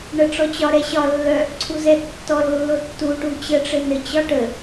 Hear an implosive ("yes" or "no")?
no